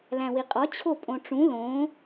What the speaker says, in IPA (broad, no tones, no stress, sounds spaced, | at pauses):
l æ̃ w i qʼ ɒ t͡ɕʰ o pʼ õ ʈ͡ʂ ũ l õ